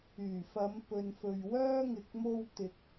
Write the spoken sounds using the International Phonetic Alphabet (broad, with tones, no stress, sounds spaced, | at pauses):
yː˨˩ f ɐ˨˧ m p ɵ˨ n f ɵ˨ ɥ w œː˥ ŋ ɪ˨ k̚ m o˧ w t̪ ɪ˨ k̚